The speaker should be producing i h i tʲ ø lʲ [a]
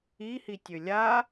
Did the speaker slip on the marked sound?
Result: no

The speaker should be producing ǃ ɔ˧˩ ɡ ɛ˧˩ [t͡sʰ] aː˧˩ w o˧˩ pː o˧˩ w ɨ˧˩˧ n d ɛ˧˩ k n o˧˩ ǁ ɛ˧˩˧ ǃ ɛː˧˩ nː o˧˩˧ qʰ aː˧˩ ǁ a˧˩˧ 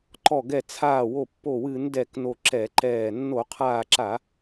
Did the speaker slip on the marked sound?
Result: no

